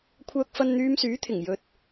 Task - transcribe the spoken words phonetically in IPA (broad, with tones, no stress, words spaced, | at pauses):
kʷʰœː˥k̚fɐ˥n n̪yː˧msyː˨˥t̪ʰɪ˨˩ŋjɵ˨t̚